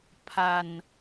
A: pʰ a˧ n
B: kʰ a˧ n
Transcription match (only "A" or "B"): A